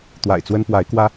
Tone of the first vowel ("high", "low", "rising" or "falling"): low